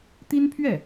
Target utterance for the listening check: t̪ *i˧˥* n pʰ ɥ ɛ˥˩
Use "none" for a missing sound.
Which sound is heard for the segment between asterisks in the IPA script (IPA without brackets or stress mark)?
i˥